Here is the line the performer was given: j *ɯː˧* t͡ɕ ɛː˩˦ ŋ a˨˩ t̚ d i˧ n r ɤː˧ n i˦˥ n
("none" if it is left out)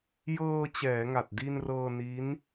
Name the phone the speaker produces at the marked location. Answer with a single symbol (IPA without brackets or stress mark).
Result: ɤː˧